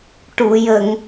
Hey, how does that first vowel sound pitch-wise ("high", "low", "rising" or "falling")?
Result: low